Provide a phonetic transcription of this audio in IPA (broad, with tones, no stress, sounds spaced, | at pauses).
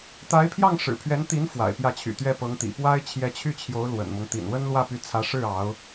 t̪ a˧˥ ɪ̯ pʰ j ɑ˥˩ ŋ ʂ ɻ̩˨˩ pʰ ɥ ɛ˧˥ n t̪ i˧˥ n f w a̰˨˩ ɪ̯ p j ä˥˩ t͡ɕʰ y̰˨˩ t̪ ɥ ɛ˥˩ p ɤ˧˥ ŋ t̪ ḭ˨˩ p w a˥ ɪ̯ t͡ɕʰ j ɛ˧˥ t͡ɕʰ y˥˩ t͡ɕʰ j o˧˥ ʊ̯ l w ə̰˨˩ n m ɤ˦ ŋ t̪ ḭ˨˩ n w ə˥ n l w ä˥˩ p y˧˥ t͡sʰ ä˧˥ ʂ ɻ̩˥˩ ɑ˧˥ ʊ̯